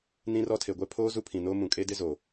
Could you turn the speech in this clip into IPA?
n ĩ˦ r ɔ˦ tʰ e˨ ɡʷ ɛ˦ pʰ oː˦ z u˦ pʰ ĩ˨ n oː˦ m ũ˨ kʼ e˦ d ɪ˦ z oː˨

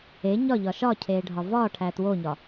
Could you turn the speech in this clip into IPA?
e ɲ ɒ ʎ ɒ ʃ ɒ cʰ eː ɖʱ ɒ v ɒː ʈʰ æː t w o ɲ ɒ

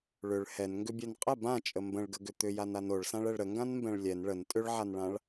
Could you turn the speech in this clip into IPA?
ɭ ʏ ɭ h ɛ n ŋ ɡ ʏ bʲ ɛ n qʼ ə b ã t͡ʃʼ ə m b ə̃ ɭ ɡ ə ɡ ʏ t̪ ʏ j a n a n o ɭ s ã ɭ ɛ ɭ ɾ ə ŋ ɡ ã n m b ɛ̃ ɭ lʲ ɛ n ɭ ə n tʼ ʏ ɭ ʕ a n ɭ ã ɭ

